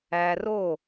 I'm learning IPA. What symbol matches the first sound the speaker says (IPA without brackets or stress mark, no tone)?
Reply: æ